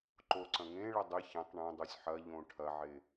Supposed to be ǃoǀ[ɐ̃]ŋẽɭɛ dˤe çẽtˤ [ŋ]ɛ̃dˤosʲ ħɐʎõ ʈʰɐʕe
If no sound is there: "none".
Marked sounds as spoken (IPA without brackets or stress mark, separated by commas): ɐ̃, ɳ